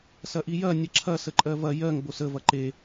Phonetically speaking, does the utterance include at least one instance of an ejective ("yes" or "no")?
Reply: yes